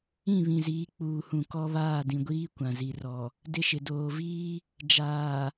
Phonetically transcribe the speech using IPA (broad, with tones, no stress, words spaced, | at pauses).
ĩ˦˨βĩ˨ziː˨˦ k͡puː˨hũ˨ kɔ˦βaː˦˨dĩ˨ɡʷiː˦ kʷã˨zi˨ rɔ˨ | dɪ˦ʃɪ˨ doː˨viː˦ | d͡ʒaː˨